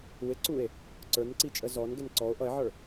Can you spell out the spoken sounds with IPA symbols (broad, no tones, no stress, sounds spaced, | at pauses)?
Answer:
u e̯ ǀ u e̯ | ǀ ə˞ n ǀ i t͡ʃʼ ə z ɔ n ɡ ɛ n ǀ ɔ o̯ ʔ ʌ e̯ ʕ ə˞